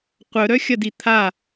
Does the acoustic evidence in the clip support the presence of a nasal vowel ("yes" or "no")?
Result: no